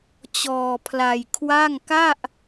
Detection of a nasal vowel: absent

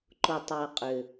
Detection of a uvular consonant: present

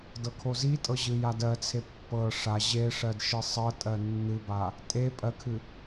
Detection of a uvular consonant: absent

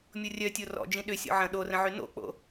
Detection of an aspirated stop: absent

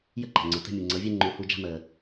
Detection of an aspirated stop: absent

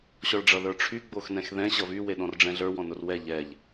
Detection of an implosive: present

